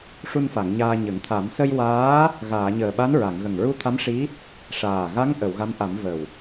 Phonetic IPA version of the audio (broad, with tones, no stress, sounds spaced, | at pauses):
ʂ u˧ n f a˨˩˨ ŋ ɲ aː˧ ɲ ə˨˩˦ ŋ t̪ʰ a˨˩˦ m s ə˧ j w aː˧˥ | ɣ aː˨˩˨ ɲ əː˨˩ ɓ a˧˥ n ɹ a˨˩˨ ŋ ɣ ə˨˩ ŋ ɹ u˧ t̪ʰ a˧˥ m ʂ i˧˥ | ʂ aː˨˩ ɣ a˧˥ ŋ ʔ ə˨˩˨ w ɣ a˧˥ m ʔ a˨˩˦ m v ə˨˩ w